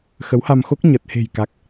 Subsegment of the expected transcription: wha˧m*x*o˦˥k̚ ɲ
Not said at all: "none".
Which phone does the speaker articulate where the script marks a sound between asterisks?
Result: x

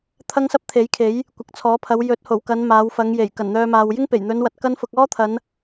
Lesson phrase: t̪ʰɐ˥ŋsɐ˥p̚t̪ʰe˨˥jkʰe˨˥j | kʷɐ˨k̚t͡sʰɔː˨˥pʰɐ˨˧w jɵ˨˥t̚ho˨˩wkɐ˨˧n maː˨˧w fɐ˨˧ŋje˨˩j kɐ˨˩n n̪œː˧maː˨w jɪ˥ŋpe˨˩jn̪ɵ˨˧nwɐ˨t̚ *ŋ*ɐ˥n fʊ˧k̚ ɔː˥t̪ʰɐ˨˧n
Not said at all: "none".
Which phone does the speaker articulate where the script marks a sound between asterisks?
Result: k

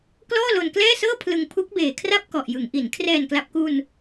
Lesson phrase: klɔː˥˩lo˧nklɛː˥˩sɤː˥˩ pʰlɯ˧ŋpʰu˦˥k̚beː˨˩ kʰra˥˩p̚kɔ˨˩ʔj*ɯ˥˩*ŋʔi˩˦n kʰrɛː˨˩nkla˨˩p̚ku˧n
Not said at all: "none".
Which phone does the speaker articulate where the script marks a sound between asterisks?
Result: ɯ˩˦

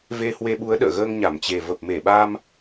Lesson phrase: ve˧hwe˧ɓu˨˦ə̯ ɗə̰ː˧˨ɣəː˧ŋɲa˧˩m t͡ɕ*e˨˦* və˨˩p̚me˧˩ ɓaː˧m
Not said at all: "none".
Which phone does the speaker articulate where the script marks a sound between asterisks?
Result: e˨˩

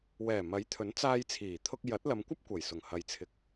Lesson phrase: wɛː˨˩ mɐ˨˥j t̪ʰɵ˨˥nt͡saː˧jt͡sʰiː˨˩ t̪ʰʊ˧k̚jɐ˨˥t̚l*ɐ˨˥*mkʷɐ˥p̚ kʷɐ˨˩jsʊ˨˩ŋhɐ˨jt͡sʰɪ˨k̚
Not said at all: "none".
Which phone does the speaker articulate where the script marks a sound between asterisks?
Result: ɐ˨˧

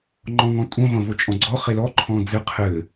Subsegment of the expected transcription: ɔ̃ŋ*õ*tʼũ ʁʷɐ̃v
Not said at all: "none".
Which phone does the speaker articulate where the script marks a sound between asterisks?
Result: ɔ̃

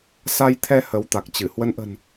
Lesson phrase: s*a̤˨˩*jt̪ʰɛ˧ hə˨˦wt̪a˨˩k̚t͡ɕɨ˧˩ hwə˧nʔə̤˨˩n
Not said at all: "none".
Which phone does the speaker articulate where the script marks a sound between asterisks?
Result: a˧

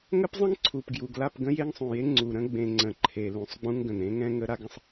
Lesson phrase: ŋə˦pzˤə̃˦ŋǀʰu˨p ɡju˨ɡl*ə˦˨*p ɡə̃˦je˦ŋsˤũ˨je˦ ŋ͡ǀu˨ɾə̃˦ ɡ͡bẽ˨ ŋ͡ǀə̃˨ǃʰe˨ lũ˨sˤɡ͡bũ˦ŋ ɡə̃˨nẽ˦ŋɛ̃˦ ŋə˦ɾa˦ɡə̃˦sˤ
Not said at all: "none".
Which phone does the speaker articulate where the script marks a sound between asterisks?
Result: a˦˨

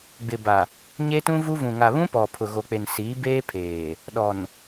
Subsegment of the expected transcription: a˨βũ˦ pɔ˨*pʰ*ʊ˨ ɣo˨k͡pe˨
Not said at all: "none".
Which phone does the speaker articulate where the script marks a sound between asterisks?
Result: pʰ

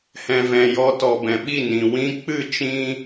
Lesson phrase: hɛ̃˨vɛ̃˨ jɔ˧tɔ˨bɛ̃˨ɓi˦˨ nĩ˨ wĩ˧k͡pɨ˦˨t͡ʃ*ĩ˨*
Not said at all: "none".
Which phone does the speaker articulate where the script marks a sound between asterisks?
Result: ĩ˧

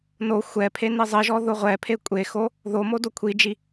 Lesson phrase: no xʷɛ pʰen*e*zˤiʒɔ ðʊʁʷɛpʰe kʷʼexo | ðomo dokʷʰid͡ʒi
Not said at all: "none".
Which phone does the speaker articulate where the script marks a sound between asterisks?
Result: i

